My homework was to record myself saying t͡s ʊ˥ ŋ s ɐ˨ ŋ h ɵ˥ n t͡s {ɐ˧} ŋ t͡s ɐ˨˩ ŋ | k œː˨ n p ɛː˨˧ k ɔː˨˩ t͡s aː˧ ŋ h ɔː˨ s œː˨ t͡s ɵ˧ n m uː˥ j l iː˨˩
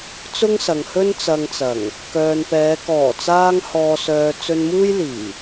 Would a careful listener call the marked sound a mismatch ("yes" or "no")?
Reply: no